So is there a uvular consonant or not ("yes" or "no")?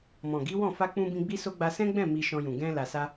no